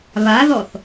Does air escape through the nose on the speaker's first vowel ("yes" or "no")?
no